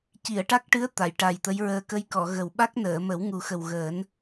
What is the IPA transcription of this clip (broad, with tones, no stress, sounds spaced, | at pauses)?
c i˨˩˨ ə̯ ʈ a˦˥ k̚ ʈ ɨ˧˥ ə̯ t̪ a˨˩˨ j ʈ a˨˩ j t̪ ə˧˥ j ɹ əː˧ k ə˧ j k ɔ˨˩˨ ɣ ə˨˩ w ɓ a˦˥ k̚ n əː˨˩˨ m ə˨˩˦ w ŋ u˨˩ x ə˨˩ w ɣ əː˨˩˦ n